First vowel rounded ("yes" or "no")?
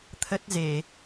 no